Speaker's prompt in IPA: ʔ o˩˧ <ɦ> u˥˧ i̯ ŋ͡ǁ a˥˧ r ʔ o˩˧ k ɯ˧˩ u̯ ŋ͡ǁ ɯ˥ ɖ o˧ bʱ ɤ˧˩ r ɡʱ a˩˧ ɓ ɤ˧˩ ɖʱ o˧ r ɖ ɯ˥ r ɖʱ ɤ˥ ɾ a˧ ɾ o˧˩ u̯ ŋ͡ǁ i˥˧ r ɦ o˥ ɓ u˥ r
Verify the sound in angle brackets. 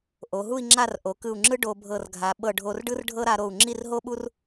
correct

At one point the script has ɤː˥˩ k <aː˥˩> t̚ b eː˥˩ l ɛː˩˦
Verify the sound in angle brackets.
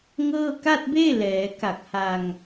incorrect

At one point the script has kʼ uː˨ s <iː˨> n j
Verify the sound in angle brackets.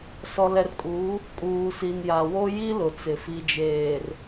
incorrect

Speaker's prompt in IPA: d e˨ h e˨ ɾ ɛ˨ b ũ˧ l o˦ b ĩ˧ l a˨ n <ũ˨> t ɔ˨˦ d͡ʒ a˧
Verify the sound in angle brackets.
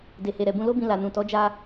correct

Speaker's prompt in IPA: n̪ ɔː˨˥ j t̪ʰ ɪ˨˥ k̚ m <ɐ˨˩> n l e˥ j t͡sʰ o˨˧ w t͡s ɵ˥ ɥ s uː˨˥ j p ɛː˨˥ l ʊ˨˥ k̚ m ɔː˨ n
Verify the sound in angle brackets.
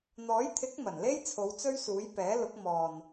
correct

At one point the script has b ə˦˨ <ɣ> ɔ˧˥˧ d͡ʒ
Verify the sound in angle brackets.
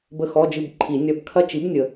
incorrect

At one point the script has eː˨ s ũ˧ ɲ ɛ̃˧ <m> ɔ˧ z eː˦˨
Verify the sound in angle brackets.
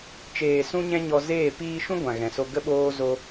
incorrect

